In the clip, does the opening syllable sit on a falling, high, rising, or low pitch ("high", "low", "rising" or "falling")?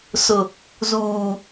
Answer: low